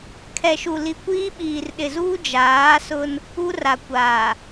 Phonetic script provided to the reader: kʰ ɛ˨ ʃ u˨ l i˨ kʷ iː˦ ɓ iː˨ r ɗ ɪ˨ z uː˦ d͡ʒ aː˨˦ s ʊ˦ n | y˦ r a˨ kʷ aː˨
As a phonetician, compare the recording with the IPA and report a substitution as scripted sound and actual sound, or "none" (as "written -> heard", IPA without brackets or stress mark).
y˦ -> u˦